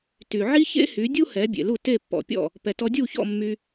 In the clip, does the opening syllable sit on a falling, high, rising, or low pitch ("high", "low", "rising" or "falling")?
low